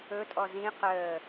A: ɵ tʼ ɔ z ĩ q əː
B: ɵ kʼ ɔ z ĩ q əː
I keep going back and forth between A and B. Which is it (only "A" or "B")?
A